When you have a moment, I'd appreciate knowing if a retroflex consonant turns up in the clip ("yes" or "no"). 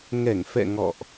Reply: no